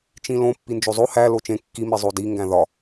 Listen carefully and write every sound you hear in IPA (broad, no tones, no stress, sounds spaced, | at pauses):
t͡ʃ ĩ l õ pː i n d͡ʒ o zˤ o h æ l o t͡ʃ ẽ kː i m i zˤ o d i ŋ ɡ æ̃ ð ɒ